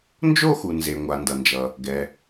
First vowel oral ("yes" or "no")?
yes